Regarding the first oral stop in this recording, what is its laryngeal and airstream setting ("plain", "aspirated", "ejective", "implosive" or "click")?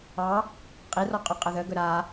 ejective